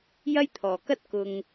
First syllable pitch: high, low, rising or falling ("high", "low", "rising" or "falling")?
high